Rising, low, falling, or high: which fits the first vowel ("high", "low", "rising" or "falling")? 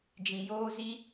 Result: low